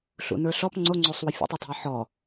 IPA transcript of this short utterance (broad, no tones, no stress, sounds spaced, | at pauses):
ɬ ṵ n ə˞ ɬ ɔ p ŋ͡ǀ o ŋ͡ǀ o sˤ w ə fʲ ə̰ tˤ i tˤ ṳ ɪ̯ ħ ɔ